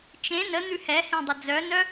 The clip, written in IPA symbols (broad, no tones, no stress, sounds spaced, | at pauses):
t͡ʃ ẽ n ə n̪ ʉ h ɛ h ẽ dˤ ə d͡z œ n œ